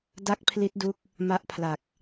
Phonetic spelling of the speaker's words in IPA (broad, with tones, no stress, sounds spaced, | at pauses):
d a˥˩ k̚ pʰ l i˦˥ t̚ d u˦˥ k̚ | m a˦˥ ʔ pʰ l a˨˩ k̚